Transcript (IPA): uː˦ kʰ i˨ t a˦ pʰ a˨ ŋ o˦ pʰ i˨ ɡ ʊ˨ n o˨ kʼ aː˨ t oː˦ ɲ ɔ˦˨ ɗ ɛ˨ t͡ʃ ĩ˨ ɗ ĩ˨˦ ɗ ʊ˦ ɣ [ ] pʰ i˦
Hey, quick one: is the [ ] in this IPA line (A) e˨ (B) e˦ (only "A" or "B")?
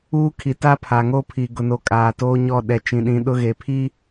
A